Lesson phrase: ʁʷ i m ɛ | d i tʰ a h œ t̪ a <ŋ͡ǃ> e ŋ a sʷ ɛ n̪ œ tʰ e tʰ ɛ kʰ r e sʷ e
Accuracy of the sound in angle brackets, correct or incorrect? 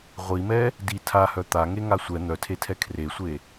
incorrect